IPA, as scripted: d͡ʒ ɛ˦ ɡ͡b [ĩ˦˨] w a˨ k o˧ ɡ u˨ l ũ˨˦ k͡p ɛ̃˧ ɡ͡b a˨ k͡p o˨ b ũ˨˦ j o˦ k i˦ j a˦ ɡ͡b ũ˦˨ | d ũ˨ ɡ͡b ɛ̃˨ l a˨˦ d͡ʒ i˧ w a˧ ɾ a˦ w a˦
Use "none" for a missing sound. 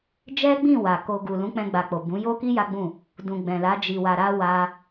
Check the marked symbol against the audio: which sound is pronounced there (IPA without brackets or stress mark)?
ĩ˦˨